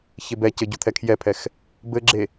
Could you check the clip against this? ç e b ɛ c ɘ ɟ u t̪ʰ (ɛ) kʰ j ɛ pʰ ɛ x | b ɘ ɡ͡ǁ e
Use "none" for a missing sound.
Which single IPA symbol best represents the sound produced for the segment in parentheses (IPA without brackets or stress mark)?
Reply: ɛ